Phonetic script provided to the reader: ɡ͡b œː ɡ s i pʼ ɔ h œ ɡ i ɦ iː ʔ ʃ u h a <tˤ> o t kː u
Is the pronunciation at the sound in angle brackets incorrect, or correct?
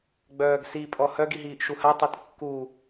correct